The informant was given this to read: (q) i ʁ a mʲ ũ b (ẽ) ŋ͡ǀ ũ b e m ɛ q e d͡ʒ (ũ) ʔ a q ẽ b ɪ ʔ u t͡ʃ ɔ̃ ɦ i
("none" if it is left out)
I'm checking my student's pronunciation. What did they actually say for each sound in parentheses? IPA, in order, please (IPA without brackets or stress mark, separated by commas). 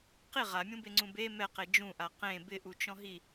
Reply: q, e, ũ